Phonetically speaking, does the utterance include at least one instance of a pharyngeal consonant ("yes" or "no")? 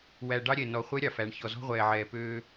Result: yes